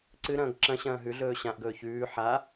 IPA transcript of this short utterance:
ǀɨɾɐ̃ːɡ ǁɐ̃ ɕɐ̃ːɦʉɮɵː ɕãʔɡɵː çʉː ħa

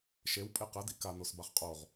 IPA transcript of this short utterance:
ʃew pʼeqɛ dḭka nosbaχqʼoʁ

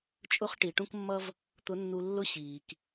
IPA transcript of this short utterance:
t͡ʃʼʊ˥χʈi˩˧ ʈũ˥kmːʌ˥v | t̪ʊ˧˥nːu˧lːʊ˥ ɕiː˩k

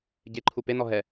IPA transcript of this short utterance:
ɟeǃʰu penɔ ɦɛ

